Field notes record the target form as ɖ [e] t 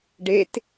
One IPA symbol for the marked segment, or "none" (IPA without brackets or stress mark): e